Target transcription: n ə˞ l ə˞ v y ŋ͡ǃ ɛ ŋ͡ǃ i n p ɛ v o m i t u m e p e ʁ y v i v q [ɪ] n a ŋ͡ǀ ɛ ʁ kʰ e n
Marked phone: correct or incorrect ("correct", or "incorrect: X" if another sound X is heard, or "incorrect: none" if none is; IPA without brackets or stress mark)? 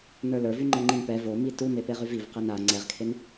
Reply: incorrect: ɛ